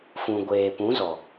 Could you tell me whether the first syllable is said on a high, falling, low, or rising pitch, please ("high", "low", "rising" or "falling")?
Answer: low